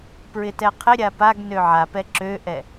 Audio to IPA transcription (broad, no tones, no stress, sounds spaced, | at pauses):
p ɹ ɪ t ɛ qʰ ɪ ɾʲ a p a ɡ n ø ʕ a p ɛ ǁ ø ʔ ɛ